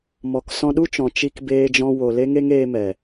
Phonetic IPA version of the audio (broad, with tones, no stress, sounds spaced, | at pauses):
m ɔ˨ k s ɔ̃˧ ɗ u˦ t͡ʃ ɔ̃˨ t͡ʃ i˧ k b eː˧ d͡ʒ ɔ̃˧ w o˨ l e˦ ŋ e˦ ŋ eː˧ m ɛ˨